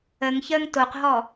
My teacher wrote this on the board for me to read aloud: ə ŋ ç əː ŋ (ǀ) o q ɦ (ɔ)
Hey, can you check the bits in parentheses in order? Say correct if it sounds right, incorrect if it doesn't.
incorrect: t, correct

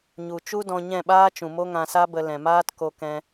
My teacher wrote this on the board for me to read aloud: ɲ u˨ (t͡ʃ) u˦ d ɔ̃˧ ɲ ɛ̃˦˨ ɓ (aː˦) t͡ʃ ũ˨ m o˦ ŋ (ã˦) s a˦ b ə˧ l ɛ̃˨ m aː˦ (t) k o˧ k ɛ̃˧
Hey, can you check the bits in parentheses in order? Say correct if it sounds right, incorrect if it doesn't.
correct, correct, incorrect: ã˧, correct

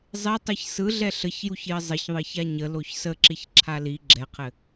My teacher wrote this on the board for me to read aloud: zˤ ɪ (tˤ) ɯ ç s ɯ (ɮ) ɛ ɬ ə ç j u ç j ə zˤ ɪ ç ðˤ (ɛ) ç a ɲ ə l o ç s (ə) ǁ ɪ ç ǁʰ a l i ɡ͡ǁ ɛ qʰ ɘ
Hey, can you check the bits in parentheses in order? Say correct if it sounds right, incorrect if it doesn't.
correct, correct, incorrect: ɘ, correct

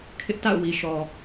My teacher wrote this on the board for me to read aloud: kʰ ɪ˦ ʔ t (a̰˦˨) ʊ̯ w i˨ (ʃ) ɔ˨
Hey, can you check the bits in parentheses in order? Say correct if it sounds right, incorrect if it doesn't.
correct, correct

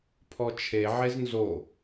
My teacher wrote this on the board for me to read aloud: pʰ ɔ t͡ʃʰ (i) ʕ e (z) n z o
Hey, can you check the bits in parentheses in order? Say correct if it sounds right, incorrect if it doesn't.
incorrect: e, correct

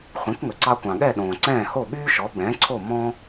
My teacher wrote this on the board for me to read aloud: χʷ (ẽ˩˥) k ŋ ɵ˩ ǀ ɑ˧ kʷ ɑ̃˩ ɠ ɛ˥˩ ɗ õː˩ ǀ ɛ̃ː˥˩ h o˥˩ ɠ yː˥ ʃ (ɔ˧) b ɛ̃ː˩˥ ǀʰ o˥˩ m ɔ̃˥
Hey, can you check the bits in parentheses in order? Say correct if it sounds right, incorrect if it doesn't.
correct, incorrect: ɔ˩˥

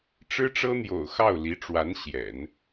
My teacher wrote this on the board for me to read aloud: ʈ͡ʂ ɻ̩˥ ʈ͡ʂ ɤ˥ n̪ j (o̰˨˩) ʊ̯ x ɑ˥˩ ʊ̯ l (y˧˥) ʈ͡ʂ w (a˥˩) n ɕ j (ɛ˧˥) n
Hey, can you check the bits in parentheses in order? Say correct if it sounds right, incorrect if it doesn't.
correct, incorrect: i˧˥, incorrect: a˧˥, incorrect: ɛ̰˨˩˦

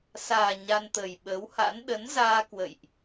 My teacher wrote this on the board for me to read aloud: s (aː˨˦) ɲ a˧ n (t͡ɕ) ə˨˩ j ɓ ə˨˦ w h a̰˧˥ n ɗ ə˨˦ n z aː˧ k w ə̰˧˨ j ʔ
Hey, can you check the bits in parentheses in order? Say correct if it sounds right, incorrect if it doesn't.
incorrect: aː˨˩, incorrect: t̪

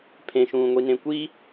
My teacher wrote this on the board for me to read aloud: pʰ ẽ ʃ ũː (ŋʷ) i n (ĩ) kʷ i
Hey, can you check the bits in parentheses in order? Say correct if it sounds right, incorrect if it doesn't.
correct, incorrect: ẽ

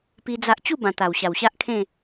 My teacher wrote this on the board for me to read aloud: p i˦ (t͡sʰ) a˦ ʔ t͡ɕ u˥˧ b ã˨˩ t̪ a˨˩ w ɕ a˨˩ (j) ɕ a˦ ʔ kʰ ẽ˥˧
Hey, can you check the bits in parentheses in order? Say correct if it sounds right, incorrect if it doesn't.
incorrect: d͡z, incorrect: w

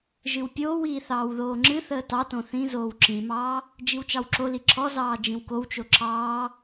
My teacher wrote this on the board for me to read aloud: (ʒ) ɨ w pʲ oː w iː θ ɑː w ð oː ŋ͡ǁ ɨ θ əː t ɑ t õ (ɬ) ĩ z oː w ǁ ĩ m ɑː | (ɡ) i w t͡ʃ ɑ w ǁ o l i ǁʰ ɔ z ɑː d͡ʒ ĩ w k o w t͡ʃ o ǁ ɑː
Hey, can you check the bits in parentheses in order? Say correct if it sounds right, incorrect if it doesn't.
correct, incorrect: θ, incorrect: d͡ʒ

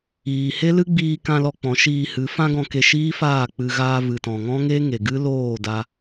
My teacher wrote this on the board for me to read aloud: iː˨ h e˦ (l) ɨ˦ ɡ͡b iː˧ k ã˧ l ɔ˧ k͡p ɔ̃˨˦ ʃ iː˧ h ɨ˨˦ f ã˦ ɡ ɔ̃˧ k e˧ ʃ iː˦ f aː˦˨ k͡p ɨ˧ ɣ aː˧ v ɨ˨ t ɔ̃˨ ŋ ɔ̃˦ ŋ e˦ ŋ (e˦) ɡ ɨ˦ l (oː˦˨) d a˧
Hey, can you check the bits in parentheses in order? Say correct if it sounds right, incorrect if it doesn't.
correct, incorrect: e˨, correct

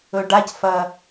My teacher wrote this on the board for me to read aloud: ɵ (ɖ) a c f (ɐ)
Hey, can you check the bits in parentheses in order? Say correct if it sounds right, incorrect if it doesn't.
correct, correct

